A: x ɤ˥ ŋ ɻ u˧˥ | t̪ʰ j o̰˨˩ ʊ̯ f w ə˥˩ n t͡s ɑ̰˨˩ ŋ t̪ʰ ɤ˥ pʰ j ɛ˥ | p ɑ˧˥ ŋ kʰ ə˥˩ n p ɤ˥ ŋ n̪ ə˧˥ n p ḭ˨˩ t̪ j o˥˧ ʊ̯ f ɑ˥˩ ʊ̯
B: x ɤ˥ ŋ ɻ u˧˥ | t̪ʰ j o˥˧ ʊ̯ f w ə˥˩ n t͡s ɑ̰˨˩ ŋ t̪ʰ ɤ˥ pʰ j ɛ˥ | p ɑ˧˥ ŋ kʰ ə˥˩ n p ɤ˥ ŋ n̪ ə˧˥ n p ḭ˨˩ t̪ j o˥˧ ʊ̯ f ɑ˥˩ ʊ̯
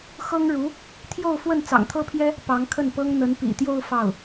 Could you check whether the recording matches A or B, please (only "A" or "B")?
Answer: B